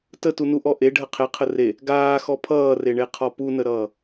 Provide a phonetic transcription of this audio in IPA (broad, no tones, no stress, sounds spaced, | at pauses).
t ə t u n u ʔ ɔ ʔ e ɖʱ ə qʰ e qʰ ə r e | ɡ aː x ɔ pʰ ʌː r e ɳ e qʰ ɔ p u n ə ɾ ʌː